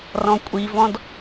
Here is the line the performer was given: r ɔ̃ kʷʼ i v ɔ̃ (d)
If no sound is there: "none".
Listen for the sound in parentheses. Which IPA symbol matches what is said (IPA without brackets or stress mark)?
d